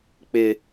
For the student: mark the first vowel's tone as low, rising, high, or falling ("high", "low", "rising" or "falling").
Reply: high